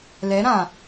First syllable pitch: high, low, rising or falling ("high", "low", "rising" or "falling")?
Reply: rising